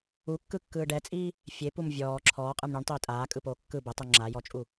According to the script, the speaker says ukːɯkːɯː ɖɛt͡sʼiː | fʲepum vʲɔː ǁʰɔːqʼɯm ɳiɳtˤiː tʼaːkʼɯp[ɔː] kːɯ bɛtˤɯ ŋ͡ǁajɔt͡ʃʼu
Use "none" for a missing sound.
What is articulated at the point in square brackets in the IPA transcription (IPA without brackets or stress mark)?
oː